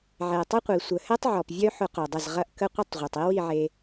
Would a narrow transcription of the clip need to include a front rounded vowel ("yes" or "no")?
yes